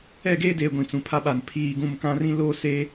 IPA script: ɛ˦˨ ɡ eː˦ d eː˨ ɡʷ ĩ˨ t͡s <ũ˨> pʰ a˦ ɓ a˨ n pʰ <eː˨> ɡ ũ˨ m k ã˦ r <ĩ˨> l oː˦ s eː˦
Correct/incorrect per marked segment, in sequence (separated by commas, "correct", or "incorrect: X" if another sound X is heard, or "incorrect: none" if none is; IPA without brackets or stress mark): correct, incorrect: iː˨, incorrect: ĩ˦